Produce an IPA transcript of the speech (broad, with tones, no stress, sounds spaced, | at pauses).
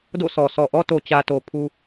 d o̰˦˨ s ɔ˨ s ɔ˨ ʔ ɔ˦ t o˨ t͡ɕ ä˨ t o˨ pʰ u˦